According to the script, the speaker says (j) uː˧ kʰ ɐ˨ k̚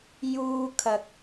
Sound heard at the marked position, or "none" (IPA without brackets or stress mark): j